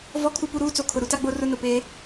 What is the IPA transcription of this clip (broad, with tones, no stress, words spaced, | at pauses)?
vɔ˦ kʰu˦pu˦ɾuː˦ t͡so˨kʰʊ˨ ɾu˦ta˦ɡ͡bo˦rʊ˦˨ nʊ˨peː˦